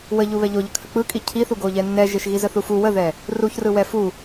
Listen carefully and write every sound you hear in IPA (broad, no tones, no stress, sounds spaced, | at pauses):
w ə ʎ u β ɛ ʎ o ʎ ə kʰ ə k͡p ɯ kʼ i cʰ i θ u ɡ o ʎ ɛ nː ɛ ʒ e ʃ ɣ i z ə θ u f u w ə ð ɛ | r u ç r ɯ w ɛ f u